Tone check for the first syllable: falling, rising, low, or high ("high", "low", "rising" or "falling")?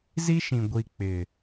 high